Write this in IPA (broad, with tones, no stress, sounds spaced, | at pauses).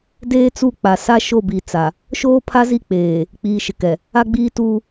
d eː˦ t͡s u˦˨ k͡p a˨ s a˦ ʃ o˦˨ b i˨ t͡s a˨ | ʃ oː˦ pʰ a˦ z i˦˨ k͡p eː˨ | k͡p iː˨ ʃ ɪ˨ k ɛ˨ | a˦ ɡ͡b iː˦ t uː˦